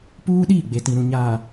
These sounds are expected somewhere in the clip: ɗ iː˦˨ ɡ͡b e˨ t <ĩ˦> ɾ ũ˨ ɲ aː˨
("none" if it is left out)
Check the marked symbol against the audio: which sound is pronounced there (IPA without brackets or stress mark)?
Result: ĩ˨